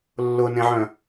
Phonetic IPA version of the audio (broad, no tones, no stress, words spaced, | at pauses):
lːʊnẽʕœ̃